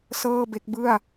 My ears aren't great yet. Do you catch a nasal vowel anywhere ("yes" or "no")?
no